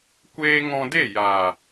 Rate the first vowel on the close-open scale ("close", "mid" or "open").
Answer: mid